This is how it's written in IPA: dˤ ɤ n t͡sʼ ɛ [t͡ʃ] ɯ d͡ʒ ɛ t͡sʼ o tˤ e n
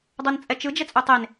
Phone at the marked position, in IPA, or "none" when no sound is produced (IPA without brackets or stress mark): t͡ʃ